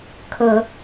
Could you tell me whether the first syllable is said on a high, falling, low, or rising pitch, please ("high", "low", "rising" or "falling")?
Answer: low